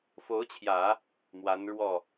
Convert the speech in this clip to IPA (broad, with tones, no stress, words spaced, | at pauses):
fo˧˥ʊ̯t͡ɕʰjä˨˩˦ | mwa˧˥nɻwɔ˥˩